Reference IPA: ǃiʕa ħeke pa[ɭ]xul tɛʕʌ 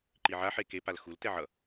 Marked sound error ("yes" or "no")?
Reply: yes